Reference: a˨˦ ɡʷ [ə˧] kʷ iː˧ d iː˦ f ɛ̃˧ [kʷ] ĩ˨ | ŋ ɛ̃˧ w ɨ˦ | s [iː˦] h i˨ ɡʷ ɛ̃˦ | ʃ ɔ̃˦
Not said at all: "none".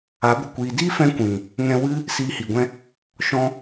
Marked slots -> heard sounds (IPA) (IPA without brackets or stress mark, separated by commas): ə˧, kʷ, iː˧